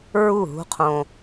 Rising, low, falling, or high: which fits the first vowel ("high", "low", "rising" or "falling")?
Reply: falling